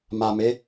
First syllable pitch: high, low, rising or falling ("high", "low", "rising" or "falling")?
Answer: low